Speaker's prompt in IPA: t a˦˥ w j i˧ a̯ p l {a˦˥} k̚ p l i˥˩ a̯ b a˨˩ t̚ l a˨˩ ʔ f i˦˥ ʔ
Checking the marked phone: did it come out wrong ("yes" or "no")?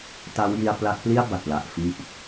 no